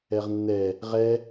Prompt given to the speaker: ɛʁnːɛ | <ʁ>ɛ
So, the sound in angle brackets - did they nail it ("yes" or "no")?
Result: yes